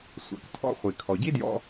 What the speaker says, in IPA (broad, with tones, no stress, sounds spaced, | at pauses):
sʷ a̰˩ k tʰ ɔ̰˧ χʷ i˩ kʰ ɔ˩ ɟ i˥ d j ɔ̰˧